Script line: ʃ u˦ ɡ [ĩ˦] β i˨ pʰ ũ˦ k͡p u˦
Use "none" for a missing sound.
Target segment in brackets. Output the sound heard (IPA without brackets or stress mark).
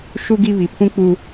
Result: i˦